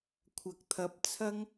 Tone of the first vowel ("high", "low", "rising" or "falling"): low